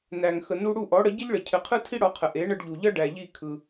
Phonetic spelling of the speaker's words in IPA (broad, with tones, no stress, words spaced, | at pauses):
næ˩ŋxə˩ nu˧ɽu˥˩ʔɔ˩˥ɽə˩˥ ɟə˥ʎɭə˩ cʰɘ˩˥qʰɯ˥tʰi˥ ɽɔ˩˥qʰə˩ ʔe˩˥ ɳə˧ɖʎu˩ʎʌ˥ ɖæ˩ʎi˥˩ kʰɯ˩